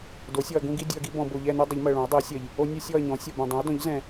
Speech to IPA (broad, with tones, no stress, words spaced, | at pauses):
do˩˥sʲɔ˨ɐ̯ɡũ˦ɡi˦ dʲu˨ɐ̯ɡi˦ bɔ̃˨bo˨ʎɛ˦˨nu˦ dˤə˩˥ʎmɜ˨ɭõ˩˥ɐ̯ dˤi˩˥ɐ̯sʲɜ˨ʎ | o˦ nʲɯ˦sʲɔ˦˨ɐ̯ɲɔ̃˩˥ sʲɔ˨bɛ̃˨ dˤĩ˩˥ɐ̯dɔ̃˩˥ʎzɛ̃˨